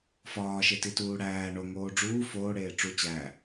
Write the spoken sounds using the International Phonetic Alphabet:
f ɒː ʃ e t i t uː ɽ æː ɳ o ŋ oː ɖ͡ʐ uː f oː ɽ eː ʈ͡ʂ u t͡ɕ æ

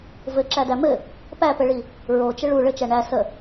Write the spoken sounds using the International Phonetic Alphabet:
v ɘ ǁ æ d æ m ɘ | p æ p ɘ ɭ i | ɹ o t͡ʃ ə ɭ u ɭ ɘ t͡ʃ æ ɳ æ s ə

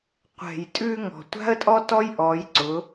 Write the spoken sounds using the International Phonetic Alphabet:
qʷ ɛ̤˨ j tʼ ʉ˧ ŋ ɔ̤˨ tʷ a̤˦ ə̯ tʼ ɔ˦ t ɔ˦ j ʔ ɔ˨˦ j ǀ ʊ˨˦

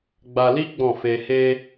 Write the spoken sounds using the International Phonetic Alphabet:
ɡ͡b a˧ l i˦ ɡ͡b ɔ̃˦˨ f e˧ h e˧

